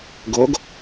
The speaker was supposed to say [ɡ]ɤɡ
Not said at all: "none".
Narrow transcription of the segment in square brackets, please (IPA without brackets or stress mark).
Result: ɡ